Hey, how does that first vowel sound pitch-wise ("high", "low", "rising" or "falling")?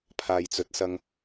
low